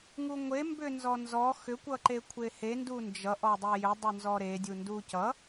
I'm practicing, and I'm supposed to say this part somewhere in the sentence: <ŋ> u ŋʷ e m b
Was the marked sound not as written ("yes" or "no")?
no